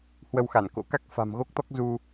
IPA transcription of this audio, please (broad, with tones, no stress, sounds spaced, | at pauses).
h w ə˧ w x a˧˩ n k o̰˧˥ k a˦˥ k̚ f a̤˨˩ m ɣ o˦˥ k̚ t̪ ɔ˦˥ k̚ z u˧